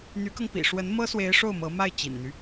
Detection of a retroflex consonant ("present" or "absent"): present